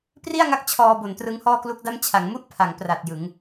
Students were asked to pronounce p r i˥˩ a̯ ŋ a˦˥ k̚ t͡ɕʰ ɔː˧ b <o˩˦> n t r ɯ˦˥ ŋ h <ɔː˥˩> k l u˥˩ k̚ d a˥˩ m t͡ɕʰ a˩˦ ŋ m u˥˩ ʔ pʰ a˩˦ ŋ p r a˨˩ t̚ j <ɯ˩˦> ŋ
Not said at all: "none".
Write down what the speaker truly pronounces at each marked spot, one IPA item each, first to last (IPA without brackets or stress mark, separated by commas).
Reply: o˩˦, ɔː˥˩, ɯ˩˦